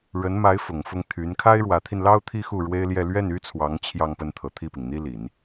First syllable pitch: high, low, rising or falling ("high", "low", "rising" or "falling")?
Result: rising